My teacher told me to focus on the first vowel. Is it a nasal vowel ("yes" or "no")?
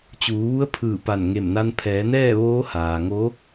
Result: no